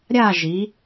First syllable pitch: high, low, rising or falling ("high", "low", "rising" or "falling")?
falling